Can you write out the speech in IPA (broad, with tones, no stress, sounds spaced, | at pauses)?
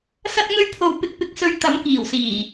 s ɐ˧ t̚ ŋ ɵ˧ ɥ pʰ o˨ w p ɪ˧ k̚ p ɪ˧ k̚ s ɵ˧ ɥ t̪ ɐ˨˥ m k iː˨˩ w s iː˨˩